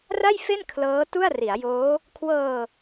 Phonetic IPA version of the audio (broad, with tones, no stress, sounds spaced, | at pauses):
r a˥˩ j f e˥˩ n kʰ l ɤː˦˥ t u˥˩ a̯ r i˩˦ a̯ j oː˦˥ | kʰ w ɤː˧